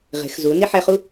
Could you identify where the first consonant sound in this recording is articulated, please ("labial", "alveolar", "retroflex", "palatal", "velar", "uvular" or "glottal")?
uvular